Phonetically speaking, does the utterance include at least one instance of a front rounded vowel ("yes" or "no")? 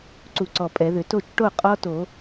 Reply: yes